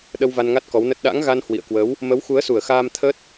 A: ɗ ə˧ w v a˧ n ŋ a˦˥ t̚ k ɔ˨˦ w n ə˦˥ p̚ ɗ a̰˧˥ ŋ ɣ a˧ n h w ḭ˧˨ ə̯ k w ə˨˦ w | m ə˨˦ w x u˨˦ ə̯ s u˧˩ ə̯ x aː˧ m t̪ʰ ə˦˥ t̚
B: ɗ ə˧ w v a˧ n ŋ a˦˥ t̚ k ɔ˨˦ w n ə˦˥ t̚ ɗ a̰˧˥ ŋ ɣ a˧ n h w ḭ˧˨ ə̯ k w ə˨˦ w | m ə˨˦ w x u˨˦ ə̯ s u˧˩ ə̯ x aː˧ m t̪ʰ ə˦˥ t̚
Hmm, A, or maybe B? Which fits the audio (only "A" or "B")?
B